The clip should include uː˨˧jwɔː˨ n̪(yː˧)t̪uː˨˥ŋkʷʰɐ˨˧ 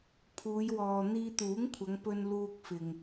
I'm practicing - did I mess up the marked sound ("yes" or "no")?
yes